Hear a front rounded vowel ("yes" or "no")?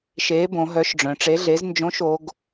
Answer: yes